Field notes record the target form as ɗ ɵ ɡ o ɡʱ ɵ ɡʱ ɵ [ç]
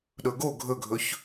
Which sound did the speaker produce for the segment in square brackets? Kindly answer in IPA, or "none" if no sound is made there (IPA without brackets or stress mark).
ç